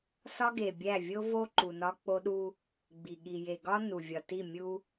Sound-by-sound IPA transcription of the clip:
sɒ˦ɡe˨bʲæ˦˨ vʲo˦vo˦ ǃu˨nɒ˦k͡po˦ɗu˦ | ɡ͡bi˨ɠi˨ je˨ɡɒ˦ nu˨vʲɒ˨ti˦˨mʲu˦

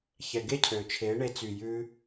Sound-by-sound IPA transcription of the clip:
çɛ˨ ɡe˦cʰø˨t͡ʃʰeː˨˦ɳe˧ t͡sy˨jʉ˧

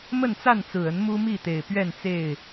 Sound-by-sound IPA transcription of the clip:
mə˥˨nt͡sa˥˨nt͡sɹ̩˨˩ə˨˦n mu˦mi˥˨ t̪e˨˩ɪ̯pɥɛ˥˨nt͡se˥˨ɪ̯

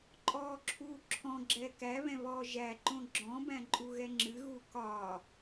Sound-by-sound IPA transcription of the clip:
ǃʼɔːǁʰuːǁʰɔ̃ ɡ͡ǁɛːkæβɛ̃βɔː ʒæǃõ ɡ͡ǁɔ̃bæ̃ ǃʼuɣɛŋ͡ǁɨ ɣukɒ

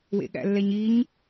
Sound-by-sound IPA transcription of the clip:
wḛɠæ̰lːɛɲiɲ

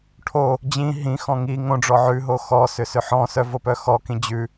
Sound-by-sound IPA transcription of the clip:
ʈʰo | d͡ʑĩ ɦĩxɔ̃ ŋi ŋõɖ͡ʐɔ ʕʉɦo xɔsʏ sʏħɔ̃sœ vopœxɔkĩ d͡ʑʉ

